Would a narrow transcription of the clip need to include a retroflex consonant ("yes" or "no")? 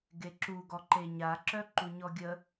no